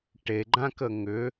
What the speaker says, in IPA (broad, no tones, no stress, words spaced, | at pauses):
ʈeɡ͡ǃãkə ŋʏ